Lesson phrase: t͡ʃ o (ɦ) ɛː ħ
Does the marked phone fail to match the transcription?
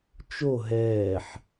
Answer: no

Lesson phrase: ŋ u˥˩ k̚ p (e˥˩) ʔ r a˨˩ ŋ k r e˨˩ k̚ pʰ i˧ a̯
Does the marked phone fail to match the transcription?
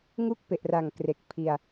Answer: yes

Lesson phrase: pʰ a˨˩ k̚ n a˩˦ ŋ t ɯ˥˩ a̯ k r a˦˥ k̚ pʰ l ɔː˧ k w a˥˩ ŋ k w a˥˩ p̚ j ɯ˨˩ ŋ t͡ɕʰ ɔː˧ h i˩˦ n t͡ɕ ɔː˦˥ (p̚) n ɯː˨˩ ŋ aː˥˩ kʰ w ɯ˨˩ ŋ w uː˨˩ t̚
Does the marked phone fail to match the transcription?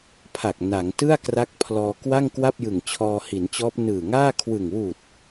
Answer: no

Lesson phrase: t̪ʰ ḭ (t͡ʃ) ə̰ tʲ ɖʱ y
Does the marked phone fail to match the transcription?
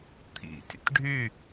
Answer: yes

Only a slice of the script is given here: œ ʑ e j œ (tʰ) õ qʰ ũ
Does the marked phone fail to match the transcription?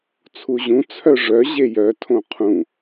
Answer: no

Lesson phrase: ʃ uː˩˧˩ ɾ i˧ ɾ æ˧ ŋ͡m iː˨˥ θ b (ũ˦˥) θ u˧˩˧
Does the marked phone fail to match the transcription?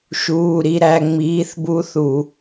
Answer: yes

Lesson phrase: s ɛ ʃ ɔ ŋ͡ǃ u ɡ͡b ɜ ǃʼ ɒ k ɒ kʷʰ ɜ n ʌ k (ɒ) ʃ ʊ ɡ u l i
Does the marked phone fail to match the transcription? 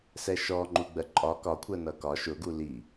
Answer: no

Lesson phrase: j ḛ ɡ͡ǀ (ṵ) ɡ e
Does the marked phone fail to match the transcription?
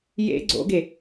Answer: yes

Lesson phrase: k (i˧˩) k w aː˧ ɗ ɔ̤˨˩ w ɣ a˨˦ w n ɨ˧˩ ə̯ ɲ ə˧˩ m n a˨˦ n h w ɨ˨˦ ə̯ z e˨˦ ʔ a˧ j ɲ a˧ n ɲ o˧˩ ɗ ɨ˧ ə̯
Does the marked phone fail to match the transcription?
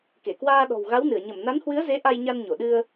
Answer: yes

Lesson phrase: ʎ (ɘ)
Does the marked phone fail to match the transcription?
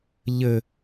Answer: no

